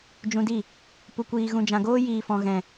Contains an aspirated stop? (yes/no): no